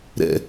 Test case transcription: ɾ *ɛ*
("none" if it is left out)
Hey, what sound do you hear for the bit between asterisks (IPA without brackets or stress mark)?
ɛ̰